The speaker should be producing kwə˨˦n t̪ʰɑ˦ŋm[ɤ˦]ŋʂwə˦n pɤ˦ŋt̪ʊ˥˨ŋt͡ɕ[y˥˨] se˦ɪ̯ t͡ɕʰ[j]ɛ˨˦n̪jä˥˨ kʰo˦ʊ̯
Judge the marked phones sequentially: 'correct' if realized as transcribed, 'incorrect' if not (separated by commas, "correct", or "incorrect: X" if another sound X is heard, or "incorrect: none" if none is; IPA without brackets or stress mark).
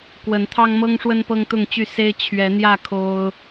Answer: correct, correct, incorrect: ɥ